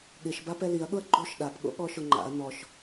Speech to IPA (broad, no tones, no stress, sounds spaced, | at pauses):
ɠ ɪ ʃ b a p ɛ l i ɐ̯ ɠ ʊ ɐ̯ ɡ͡ǃ o ʃ ɗ a p ɠ o̰ ɠ ɔ ʃ ʊ ŋ͡ǃ a̰ ɐ̯ n ɔ ʃ